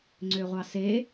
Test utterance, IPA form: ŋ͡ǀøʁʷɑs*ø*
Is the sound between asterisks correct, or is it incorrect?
incorrect